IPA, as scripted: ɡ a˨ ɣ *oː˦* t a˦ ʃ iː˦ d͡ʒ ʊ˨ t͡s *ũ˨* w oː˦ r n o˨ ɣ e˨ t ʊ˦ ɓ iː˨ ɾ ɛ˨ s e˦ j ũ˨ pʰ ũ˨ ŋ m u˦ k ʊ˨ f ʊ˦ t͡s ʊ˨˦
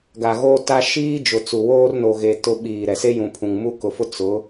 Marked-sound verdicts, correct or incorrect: correct, incorrect: u˨

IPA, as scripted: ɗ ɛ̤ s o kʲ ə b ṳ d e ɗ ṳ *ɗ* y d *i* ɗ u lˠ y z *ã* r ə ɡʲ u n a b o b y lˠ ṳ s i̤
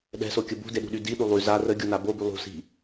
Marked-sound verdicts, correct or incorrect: correct, correct, incorrect: a

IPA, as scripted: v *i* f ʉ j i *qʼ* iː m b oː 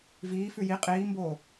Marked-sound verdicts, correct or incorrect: incorrect: iː, correct

